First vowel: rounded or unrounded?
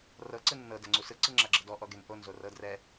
unrounded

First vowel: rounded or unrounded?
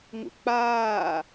rounded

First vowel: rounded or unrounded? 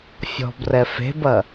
rounded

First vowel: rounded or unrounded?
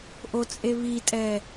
rounded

